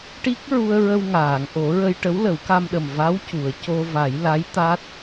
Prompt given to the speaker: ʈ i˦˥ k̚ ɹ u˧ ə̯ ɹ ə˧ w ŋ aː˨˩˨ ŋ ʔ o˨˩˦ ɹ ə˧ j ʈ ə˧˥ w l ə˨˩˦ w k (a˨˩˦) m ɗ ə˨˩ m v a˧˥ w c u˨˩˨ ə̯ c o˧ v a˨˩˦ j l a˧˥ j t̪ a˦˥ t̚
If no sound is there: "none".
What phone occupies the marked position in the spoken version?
a˧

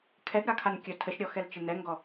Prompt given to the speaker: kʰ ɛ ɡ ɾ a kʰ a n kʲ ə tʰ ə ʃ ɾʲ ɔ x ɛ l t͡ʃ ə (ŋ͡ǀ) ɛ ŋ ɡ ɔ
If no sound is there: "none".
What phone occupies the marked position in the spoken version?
n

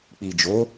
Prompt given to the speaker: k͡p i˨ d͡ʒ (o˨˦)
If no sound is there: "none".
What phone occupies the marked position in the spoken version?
o˨˦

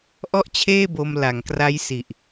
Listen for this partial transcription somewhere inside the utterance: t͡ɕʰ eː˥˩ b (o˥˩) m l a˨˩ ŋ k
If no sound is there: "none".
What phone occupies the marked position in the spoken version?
o˧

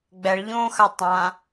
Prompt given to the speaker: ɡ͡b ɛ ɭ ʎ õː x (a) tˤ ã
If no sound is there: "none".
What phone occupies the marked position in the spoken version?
a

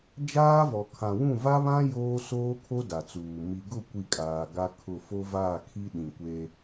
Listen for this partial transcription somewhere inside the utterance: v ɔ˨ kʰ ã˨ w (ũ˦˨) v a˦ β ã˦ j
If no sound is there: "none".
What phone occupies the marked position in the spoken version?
ũ˦˨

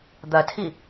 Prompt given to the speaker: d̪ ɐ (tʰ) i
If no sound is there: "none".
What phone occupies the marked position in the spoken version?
tʰ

